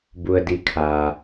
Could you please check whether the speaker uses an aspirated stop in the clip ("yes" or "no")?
yes